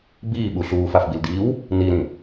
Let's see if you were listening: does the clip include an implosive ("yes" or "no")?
yes